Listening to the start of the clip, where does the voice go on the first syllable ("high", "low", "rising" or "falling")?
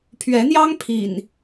rising